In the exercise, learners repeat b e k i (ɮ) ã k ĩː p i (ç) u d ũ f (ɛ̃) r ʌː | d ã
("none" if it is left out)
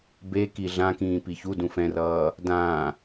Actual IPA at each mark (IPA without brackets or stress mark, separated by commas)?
ɮ, ç, ɛ̃